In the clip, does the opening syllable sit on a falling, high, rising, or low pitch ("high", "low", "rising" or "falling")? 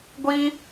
high